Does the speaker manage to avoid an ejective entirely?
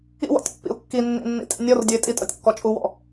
no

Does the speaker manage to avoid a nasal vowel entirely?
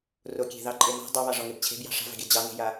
yes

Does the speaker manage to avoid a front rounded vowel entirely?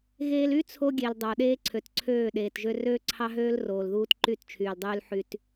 no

